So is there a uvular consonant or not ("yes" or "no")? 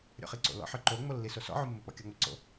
yes